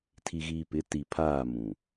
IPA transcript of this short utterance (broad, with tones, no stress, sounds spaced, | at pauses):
tʰ i˨ ɣ iː˨ p ɪ˨˦ t i˨ pʰ aː˦˨ m ũ˨